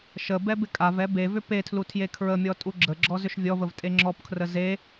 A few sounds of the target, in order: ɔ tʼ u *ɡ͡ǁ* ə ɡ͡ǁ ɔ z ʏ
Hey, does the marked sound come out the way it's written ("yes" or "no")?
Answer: yes